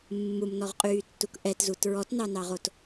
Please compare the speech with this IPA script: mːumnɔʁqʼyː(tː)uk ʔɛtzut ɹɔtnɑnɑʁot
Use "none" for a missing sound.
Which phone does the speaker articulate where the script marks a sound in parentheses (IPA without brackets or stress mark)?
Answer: tː